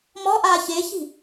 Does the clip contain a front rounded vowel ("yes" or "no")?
no